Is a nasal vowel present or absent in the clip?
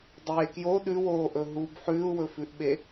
absent